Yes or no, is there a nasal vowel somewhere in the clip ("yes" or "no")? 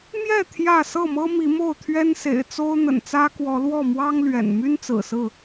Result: no